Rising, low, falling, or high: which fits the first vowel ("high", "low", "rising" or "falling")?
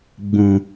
low